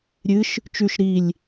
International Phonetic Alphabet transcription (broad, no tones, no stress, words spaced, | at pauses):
ɾʲɨʃ | t͡ʃʉʃ ɾilʲ